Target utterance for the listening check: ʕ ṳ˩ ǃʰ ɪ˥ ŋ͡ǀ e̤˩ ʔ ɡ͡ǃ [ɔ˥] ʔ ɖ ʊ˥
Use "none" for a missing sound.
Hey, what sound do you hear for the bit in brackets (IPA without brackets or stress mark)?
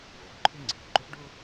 ʊ˥